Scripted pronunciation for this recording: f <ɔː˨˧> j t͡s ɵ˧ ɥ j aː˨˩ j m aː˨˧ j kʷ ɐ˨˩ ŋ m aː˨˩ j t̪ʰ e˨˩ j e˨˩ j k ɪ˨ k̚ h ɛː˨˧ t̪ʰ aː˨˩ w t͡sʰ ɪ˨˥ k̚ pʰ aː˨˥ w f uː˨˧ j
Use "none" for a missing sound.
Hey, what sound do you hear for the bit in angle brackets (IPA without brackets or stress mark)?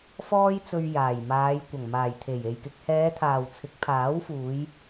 ɔː˥